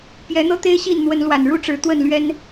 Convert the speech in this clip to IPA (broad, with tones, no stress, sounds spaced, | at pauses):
p j ɛ˨˦ n̪ ɤ˦ t̪ e˦ ɪ̯ ɕ i˥˨ n n̪ w ə˨˦ n l w a˨˩ n ɻ u˦ ʈ͡ʂ ɻ̩˨˦ t̪ w ə˥˨ n l ɥ ɛ˦ n